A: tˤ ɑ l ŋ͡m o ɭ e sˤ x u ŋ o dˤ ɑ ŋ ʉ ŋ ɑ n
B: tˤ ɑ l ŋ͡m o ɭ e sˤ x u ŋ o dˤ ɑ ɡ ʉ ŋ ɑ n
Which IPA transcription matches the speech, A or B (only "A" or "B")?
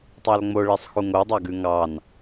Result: B